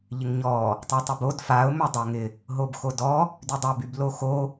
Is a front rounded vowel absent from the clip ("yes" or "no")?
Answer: no